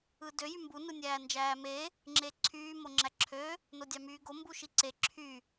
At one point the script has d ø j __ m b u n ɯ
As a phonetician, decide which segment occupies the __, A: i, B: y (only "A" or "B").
B